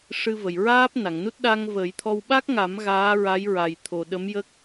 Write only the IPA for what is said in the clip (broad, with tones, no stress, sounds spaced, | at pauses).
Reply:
ʂ ɨ˧ v ə˨˩ j ɹ aː˦˥ p̚ n a˨˩˨ ŋ n u˦˥ t̚ ɗ a˧ ŋ v ə˨˩˦ j t̪ʰ ɔ˧ w ɓ a˦˥ k̚ ŋ a˨˩˦ m ɣ aː˧˥ ɹ a˧˥ j ɹ a˨˩ j t̪ʰ o˨˩ ɗ ə˧˥ m j ə˦˥ k̚